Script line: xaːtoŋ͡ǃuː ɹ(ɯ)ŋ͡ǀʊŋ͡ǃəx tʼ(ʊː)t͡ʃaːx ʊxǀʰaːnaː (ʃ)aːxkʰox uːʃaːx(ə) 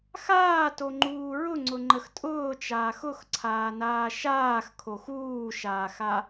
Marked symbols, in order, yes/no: no, yes, yes, no

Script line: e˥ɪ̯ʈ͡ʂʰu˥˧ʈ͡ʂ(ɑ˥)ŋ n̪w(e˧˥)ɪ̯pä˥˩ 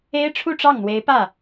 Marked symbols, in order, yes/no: no, yes

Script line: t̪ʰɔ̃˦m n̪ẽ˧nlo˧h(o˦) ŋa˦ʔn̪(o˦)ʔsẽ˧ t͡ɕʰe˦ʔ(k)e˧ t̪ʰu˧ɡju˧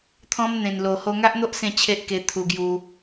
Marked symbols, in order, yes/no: yes, yes, yes

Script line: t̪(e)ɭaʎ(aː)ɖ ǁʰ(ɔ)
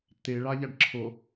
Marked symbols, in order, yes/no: yes, no, no

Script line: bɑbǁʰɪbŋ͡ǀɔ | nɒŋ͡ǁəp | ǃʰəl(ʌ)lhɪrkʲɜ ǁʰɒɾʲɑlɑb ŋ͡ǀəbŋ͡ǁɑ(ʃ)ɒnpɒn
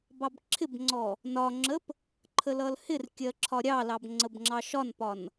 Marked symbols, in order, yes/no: yes, yes

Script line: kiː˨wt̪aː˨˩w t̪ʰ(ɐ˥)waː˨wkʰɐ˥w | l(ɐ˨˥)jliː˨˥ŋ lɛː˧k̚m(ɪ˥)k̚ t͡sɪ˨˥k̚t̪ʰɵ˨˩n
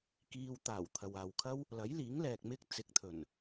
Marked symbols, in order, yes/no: no, yes, yes

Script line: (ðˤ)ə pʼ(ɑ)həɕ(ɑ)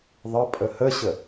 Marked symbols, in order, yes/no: yes, no, no

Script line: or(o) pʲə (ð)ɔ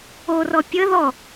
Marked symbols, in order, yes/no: no, yes

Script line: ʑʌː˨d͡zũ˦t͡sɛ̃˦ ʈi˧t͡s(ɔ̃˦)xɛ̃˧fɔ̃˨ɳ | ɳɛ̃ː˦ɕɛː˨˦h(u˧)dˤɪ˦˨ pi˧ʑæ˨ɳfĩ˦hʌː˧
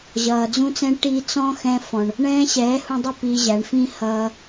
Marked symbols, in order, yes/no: yes, no

